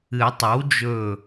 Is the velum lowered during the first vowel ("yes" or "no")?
no